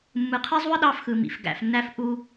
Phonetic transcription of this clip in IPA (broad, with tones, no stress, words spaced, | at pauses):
mːɯ˨qʰe˦zˤu˦ə̯ ɗɑ˦fxɯ˨mḭ˨f ɡæ̰˨fnːæ˦f ʔu˦